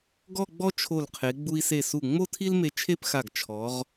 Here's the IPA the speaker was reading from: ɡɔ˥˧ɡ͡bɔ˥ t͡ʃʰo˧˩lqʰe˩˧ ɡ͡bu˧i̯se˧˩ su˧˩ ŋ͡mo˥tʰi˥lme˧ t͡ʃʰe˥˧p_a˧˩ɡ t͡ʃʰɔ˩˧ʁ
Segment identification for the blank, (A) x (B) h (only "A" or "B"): A